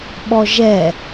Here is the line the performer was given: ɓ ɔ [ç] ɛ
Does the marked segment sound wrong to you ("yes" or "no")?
yes